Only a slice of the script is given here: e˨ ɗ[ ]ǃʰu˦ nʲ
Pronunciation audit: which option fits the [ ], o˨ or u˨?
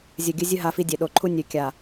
o˨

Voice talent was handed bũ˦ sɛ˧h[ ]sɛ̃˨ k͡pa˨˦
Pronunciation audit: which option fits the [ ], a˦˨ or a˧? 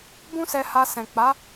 a˧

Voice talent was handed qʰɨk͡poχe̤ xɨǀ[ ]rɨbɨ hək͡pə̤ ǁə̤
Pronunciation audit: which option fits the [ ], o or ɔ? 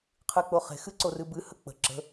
o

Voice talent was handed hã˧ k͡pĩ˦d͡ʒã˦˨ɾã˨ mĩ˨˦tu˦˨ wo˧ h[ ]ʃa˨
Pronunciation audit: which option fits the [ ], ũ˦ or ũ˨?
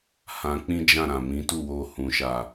ũ˨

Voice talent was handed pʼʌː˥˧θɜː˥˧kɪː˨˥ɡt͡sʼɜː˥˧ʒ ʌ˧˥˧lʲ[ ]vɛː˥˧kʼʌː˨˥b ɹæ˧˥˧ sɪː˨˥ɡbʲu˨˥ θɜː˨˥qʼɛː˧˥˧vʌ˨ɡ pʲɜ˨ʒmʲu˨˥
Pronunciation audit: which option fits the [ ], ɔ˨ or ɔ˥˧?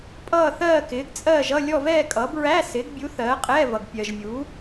ɔ˥˧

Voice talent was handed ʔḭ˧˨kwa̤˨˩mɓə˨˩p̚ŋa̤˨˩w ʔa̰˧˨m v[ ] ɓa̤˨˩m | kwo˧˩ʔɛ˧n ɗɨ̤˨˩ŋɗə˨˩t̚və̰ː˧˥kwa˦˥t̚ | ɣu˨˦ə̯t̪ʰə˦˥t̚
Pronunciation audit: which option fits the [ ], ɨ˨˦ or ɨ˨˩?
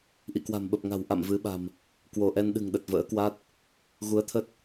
ɨ˨˦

